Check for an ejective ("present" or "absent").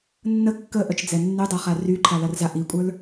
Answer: present